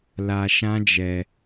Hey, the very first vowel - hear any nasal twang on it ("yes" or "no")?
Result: no